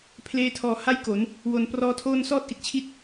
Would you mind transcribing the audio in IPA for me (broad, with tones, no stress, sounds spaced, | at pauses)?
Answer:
pʰ l eː˧ tʰ ɔː˨˩ h a˥˩ j k o˩˦ n | w o˨˩ n p r ɔː˦˥ tʰ oː˥˩ n s ɔː˥˩ t̚ ʔ i˦˥ t̚ t͡ɕʰ i˥˩ t̚